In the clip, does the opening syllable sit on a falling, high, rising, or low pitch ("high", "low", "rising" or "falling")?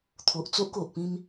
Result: low